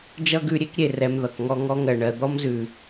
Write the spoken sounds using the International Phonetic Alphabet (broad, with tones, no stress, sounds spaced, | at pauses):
d͡ʒ ʌ˦ ɡ ʉ˧ ɾʲ e˦ k ɾʲ e˨ r ɛ˧ m ð ʌ˨ k ŋ ɔ˦ ŋ ɔ˧ ŋ ɜ˨ ɳ ɜ˨ d̪ ɔ˦ m z ʉ˨